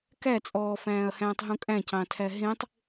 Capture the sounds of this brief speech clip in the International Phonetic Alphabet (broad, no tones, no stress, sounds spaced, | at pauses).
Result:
k æ t͡sʼ ɔː f æ̃ː ɐ̯ h æ̃ː tˤ ɦ ũ kʼ æ̃ c ɑ̃ tʰ æ ɦ ẽ tˤ